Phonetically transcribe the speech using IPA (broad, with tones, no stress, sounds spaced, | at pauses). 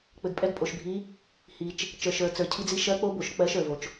k͡p ɘ˨ ɡ pʼ ɛ˧˥ ɡ pʼ o˨ ʃ bʱ i˧˥ | h i˨ t͡ʃ | t͡ʃ ə˞˨ ʃ ə˞˨ t͡s ə˞˨ cʰ i˧˥ d͡z i˧˥ ʃ ɜ˧˥ k͡p o˧˥ b o˨ ʃ k͡p ɜ˧˥ ʃ ə˞˨ v o˨ t͡ʃ